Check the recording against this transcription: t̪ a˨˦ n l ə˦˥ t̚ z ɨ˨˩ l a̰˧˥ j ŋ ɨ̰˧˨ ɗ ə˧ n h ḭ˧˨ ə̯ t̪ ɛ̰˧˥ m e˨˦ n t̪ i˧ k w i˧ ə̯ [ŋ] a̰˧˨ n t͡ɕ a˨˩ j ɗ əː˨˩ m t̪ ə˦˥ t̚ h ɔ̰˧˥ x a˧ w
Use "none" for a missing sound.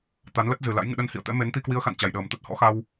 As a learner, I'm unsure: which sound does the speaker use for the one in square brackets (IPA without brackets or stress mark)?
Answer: x